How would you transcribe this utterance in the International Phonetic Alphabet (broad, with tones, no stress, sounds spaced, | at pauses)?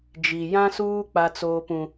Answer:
d͡ʒ i˨ j ã˦ s uː˦ k͡p a˦ t͡s oː˦ p ũ˦